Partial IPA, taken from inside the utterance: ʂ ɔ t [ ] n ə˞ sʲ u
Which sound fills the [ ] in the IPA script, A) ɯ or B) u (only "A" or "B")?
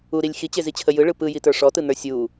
A